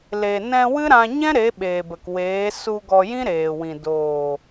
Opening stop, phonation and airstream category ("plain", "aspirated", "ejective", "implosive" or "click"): implosive